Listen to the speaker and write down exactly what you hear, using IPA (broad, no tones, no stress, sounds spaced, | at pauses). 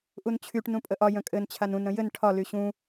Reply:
ʔ u n t͡ɕʰ y ʈ n ũ pʼ ə ʔ ɒ j ə̃ kʼ ɘ n t͡ɕʰ a n ũ n ɾ ə̃ j ɘ n ʈʰ ɒ l y ɕ ũ